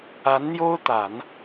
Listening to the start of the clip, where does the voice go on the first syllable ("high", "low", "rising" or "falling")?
rising